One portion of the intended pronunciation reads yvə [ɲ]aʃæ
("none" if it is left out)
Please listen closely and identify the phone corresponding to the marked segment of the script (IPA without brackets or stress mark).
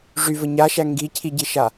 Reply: ɲ